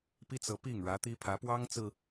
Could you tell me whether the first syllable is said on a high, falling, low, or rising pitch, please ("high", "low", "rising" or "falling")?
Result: high